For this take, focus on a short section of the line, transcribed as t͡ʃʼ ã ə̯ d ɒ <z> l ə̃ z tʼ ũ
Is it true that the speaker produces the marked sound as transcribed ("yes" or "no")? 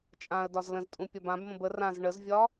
yes